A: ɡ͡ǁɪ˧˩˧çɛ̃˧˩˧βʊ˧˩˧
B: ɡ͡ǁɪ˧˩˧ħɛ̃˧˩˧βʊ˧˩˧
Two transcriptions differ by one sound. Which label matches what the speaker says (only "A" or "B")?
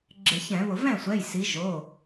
A